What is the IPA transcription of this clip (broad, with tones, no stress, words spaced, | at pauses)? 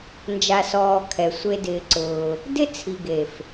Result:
nd͡ʒa˨sɔː˨ kʰɛ˨sʷe˧ dɪː˧ǀʊː˧ | dɪ˦t͡sʰi˨ɡe˨f